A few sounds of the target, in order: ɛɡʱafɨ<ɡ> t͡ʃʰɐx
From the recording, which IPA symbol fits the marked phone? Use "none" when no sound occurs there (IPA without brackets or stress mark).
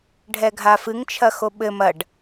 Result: ŋ